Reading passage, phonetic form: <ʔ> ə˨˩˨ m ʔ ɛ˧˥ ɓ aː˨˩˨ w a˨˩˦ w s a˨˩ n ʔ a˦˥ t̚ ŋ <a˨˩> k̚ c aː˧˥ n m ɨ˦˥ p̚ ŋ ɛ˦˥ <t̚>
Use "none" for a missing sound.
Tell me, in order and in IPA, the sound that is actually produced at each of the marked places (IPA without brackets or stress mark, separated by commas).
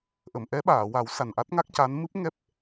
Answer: ʔ, a˦˥, p̚